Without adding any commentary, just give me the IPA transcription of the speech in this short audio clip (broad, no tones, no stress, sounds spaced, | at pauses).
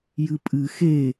j ɨ pʼ ɨ x e